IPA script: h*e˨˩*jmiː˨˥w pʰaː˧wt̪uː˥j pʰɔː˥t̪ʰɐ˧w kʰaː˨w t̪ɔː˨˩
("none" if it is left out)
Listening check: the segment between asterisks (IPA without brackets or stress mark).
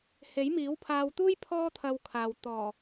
e˨˥